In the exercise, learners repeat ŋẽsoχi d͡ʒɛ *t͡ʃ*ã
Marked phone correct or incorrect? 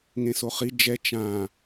correct